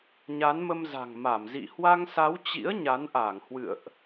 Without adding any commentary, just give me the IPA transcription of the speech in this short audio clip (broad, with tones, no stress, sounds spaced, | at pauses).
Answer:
ɲ a˨˦ n m ə˧ m z a̤˨˩ ŋ m a˧˩ m z ḭ˧˨ h w a˧ ŋ s a˨˦ w t͡ɕ ḭ˧˥ ə̯ ɲ a˨˦ n ʔ a˧˩ ŋ h w ɨ̰˧˨ ə̯ ʔ